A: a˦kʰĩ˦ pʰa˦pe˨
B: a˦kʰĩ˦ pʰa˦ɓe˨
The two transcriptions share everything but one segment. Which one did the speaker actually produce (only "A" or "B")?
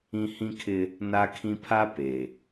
A